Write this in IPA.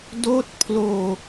d oː˦˥ t̚ pʰ l oː˧

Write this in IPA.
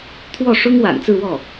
t̪ʰ w ɔ˥˩ ʂ ʊ˥ ŋ w a̰˨˩ n t͡s ɹ̩˥˧ w ɔ˥˩

